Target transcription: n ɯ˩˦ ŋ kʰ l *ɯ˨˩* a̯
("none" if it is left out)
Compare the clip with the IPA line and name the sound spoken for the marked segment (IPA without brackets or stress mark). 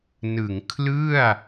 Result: ɯ˥˩